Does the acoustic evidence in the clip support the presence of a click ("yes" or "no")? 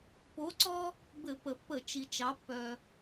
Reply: yes